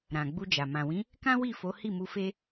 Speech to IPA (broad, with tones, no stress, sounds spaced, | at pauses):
ɾ ã˨ ɡ͡b u˧ d͡ʒ a˨ m ã˨ w ĩ˨˦ | k ã˦ w i˦˨ f o˨˦ h i˦˨ m u˧ f e˦